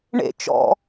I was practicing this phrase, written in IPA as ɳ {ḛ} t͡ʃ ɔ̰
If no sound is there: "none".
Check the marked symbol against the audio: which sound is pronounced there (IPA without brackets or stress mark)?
ḛ